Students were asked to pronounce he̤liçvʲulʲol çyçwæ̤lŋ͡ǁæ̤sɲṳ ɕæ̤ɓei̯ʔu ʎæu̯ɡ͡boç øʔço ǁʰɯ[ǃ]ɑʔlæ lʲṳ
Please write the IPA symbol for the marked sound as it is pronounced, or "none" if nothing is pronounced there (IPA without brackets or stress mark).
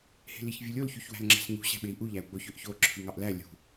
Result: ŋ